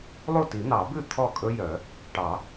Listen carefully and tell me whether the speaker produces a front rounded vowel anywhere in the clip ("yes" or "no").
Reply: yes